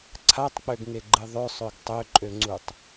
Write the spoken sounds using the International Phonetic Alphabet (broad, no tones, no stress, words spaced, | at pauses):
ǀʰatˤk͡pøɡŋeɡ͡ǃɨ ðˤøsˤøɡ tˤøǃʼøŋ͡ǀutˤ